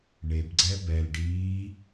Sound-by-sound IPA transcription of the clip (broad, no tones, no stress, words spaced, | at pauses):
ɳebɡ͡ǀɛb ɛl ɖi